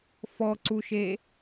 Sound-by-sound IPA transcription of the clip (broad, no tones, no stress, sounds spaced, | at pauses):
f ɔ ǀ u ʃ e